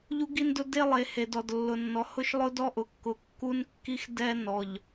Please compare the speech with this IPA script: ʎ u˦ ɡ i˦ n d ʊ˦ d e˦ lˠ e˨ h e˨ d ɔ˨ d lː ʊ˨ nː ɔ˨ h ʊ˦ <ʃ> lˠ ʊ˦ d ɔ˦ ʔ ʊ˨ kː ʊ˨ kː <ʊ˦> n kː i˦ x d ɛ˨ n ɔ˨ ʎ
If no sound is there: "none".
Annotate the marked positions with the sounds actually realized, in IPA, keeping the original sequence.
ʃ, u˦

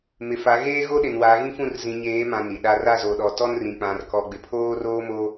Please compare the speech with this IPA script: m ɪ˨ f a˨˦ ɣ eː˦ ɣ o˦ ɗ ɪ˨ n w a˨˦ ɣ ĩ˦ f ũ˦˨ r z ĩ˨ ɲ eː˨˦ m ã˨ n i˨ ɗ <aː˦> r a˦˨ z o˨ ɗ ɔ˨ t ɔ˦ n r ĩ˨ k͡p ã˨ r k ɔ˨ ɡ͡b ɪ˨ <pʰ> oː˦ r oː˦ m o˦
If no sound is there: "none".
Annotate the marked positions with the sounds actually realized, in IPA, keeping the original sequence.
a˦, pʰ

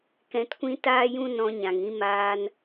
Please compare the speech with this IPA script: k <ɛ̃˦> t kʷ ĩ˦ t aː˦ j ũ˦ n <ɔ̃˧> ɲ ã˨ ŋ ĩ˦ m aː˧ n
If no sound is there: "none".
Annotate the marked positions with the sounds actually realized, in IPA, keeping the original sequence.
ɛ̃˧, ɔ̃˧

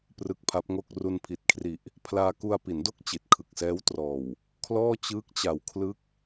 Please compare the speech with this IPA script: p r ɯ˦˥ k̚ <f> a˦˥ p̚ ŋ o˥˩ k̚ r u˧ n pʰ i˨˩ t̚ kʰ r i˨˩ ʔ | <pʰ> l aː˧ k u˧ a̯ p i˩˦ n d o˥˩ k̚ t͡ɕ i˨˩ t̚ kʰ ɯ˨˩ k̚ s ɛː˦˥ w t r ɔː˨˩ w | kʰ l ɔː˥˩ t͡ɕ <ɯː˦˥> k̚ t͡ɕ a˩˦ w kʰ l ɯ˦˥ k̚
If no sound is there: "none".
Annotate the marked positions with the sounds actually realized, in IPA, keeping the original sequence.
pʰ, pʰ, ɯː˦˥

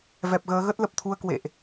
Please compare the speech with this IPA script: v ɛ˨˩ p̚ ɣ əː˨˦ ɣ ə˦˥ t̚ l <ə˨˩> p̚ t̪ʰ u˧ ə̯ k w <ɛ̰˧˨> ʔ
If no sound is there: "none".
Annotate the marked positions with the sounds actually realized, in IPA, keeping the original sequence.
ə˨˩, ḛ˧˨

